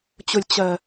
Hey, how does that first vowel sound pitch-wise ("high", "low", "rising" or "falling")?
low